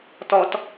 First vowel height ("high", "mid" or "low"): mid